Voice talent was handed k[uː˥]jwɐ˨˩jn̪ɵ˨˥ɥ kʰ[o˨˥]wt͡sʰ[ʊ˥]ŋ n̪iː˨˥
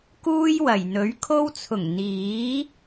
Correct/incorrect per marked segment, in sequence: correct, incorrect: o˧, incorrect: ʊ˨˩

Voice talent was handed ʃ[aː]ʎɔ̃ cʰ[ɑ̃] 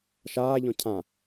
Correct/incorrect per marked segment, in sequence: correct, incorrect: ã

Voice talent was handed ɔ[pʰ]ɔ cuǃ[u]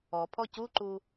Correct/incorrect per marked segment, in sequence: correct, correct

